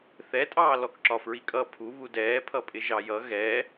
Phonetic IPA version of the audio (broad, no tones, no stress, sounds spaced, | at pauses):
θ ɛ tʼ ɑː l ɔ k ǁ ɒ f ɹ i kʼ ʌ pʰ u β u d ɛː pʰ ʌ pʼ ɪ ʒ ɑ j ʌ ɣ ɛ